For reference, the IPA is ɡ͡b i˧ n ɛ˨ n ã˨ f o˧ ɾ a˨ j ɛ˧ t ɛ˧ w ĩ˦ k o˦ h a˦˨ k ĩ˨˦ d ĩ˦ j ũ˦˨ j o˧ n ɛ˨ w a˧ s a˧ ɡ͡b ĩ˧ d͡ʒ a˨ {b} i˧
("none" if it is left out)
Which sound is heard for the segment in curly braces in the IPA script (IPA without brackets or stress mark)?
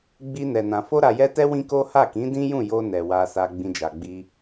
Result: ɡ͡b